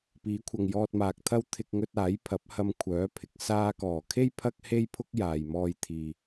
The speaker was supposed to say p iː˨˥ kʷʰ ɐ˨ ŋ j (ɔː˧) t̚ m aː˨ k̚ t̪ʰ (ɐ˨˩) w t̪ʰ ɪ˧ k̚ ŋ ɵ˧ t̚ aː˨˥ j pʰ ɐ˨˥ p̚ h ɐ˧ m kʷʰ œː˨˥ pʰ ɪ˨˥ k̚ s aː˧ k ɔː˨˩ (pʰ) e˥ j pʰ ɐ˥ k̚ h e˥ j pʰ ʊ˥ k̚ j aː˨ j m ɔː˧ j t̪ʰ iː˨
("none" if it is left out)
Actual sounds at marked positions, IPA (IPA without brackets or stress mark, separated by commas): ɔː˧, ɐ˥, kʰ